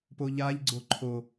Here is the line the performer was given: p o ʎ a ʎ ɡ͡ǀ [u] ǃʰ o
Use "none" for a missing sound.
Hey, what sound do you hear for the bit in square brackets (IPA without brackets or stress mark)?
o